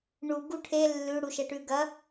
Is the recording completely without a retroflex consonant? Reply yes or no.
no